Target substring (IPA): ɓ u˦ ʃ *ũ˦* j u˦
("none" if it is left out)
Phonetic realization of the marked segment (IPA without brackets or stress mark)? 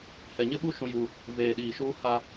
ũ˦